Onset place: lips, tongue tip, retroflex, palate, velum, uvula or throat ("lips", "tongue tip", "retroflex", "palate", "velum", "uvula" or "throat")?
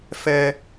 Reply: lips